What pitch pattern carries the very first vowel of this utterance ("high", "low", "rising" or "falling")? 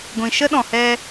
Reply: low